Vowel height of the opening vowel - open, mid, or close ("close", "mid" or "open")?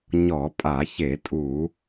mid